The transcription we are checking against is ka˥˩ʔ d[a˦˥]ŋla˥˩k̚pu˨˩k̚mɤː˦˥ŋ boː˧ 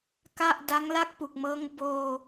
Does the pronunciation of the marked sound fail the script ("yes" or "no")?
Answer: no